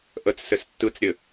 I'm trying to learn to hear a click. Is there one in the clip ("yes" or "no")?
no